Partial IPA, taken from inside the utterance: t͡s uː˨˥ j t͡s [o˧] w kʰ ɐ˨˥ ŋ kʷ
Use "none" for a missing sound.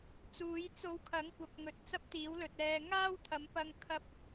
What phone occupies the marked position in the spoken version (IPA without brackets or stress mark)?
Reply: o˧